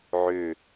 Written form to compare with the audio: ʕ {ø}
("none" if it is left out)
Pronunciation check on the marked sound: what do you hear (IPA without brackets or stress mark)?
ø